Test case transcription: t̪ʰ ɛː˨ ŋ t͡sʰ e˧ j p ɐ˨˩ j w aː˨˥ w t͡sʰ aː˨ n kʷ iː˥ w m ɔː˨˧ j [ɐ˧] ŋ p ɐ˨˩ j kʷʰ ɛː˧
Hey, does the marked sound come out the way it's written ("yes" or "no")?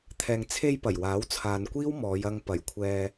yes